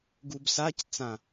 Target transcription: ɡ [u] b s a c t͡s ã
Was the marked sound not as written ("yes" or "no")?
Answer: no